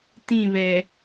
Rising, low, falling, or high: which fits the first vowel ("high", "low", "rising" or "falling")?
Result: falling